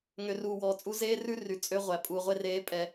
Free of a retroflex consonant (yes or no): yes